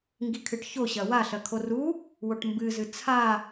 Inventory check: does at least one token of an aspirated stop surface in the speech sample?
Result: yes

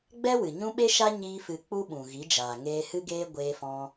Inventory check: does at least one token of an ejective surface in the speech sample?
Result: no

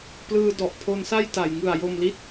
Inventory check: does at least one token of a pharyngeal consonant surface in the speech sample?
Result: no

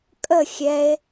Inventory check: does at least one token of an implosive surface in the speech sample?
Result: no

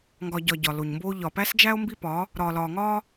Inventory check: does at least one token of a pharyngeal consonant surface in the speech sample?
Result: no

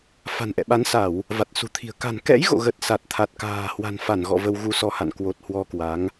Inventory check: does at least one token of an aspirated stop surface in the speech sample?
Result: yes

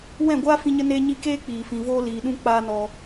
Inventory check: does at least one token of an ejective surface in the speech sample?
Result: no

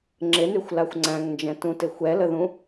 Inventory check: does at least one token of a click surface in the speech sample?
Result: yes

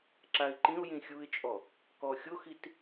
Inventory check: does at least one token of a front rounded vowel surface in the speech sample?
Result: no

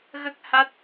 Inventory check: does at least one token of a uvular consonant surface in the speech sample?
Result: no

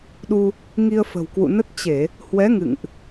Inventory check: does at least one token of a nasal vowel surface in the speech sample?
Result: no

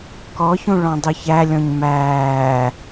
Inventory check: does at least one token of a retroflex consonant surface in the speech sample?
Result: yes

